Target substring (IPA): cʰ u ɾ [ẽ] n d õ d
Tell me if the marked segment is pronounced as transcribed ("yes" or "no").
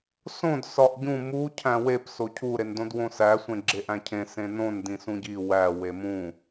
no